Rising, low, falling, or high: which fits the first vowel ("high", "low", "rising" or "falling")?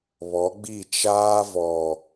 rising